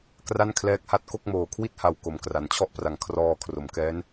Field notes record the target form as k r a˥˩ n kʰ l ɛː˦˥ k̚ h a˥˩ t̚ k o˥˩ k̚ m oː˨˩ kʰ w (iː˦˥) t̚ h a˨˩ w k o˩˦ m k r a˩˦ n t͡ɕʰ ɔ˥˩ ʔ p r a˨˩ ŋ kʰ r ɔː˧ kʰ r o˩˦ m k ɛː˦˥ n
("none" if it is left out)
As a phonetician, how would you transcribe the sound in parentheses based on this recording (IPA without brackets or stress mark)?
i˦˥